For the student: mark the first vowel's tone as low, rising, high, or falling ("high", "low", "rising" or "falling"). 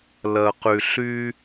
low